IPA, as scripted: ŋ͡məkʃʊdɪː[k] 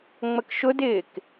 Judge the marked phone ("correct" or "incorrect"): correct